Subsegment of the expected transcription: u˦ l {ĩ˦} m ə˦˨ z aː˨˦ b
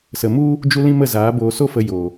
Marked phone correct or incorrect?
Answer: correct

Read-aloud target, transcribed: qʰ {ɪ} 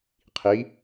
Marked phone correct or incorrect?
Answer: incorrect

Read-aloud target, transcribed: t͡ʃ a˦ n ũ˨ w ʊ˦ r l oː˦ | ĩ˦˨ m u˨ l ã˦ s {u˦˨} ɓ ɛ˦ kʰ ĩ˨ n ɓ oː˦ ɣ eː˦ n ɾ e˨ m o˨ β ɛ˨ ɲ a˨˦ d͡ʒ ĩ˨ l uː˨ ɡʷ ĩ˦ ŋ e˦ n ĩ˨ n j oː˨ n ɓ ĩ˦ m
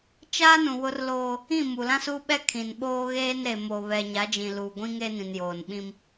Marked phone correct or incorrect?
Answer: incorrect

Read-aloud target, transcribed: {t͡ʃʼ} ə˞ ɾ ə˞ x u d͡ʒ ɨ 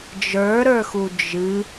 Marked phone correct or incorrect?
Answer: incorrect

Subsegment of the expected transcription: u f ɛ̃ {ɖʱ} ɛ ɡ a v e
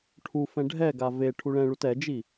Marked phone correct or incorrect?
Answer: correct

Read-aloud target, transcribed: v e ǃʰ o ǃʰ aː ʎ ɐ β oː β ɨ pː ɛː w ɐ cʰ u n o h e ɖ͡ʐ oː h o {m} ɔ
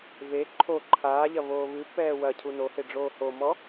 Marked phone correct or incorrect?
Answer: correct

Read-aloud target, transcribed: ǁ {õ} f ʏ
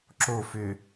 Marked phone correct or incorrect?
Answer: incorrect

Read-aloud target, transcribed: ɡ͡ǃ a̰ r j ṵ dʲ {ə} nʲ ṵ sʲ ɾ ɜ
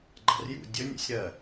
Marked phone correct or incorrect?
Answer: correct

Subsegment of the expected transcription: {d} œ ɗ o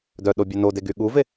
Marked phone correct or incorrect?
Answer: correct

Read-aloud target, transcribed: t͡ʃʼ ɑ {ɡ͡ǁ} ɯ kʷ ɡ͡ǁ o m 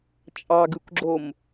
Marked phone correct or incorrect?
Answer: incorrect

